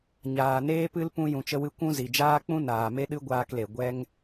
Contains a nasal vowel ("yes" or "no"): yes